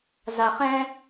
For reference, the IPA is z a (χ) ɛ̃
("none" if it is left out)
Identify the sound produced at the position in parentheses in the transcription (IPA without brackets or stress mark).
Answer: χ